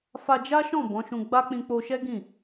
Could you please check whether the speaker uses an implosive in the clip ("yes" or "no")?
no